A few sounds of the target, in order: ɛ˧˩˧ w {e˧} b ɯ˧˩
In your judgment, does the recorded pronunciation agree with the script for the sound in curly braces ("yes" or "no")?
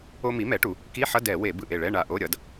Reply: no